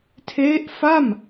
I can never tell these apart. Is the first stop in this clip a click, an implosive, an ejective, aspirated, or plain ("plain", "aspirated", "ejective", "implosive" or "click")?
aspirated